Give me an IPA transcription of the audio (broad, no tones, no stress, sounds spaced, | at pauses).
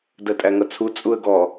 d ɜ tʼ æ ŋ ʌ t͡sʰ u t͡sʼ u ə̯ ɡ ɔ